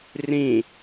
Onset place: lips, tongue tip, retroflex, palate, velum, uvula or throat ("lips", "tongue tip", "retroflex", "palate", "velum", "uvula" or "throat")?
tongue tip